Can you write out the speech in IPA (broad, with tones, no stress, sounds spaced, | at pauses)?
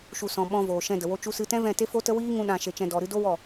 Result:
ʃ u˨ s ɔ̃˨ ɓ ɔ̃˧ v oː˨ ʃ ɛ̃˧ d ə˨ w o˧ t͡ʃ u˧ s ɨ˧ t ɛ̃˦ v ɛ̃˦˨ t e˦ f o˦ t ə˦ w iː˦ ŋ ũ˦ ɗ ã˧ ʃ e˧ t͡ʃ ɛ̃˧ d ɔ˧ ɾ ɨ˦ d o˦ w ɔ˦˨